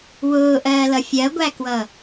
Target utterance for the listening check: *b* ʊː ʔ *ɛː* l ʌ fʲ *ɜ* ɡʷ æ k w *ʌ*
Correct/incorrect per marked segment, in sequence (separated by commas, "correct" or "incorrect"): incorrect, incorrect, correct, correct